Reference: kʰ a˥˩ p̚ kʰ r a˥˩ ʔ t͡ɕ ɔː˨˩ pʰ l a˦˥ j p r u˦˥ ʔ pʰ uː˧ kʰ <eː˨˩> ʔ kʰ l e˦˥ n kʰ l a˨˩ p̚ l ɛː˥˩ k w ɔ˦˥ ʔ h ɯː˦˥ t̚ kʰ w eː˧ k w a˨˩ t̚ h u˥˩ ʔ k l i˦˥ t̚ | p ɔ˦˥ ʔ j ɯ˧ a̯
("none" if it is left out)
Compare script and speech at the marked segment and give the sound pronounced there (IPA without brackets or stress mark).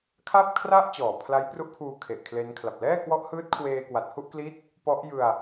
e˨˩